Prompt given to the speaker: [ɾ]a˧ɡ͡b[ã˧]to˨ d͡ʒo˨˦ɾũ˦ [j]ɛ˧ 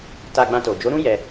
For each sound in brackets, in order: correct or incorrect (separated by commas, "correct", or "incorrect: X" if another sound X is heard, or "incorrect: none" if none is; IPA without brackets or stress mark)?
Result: incorrect: t, correct, correct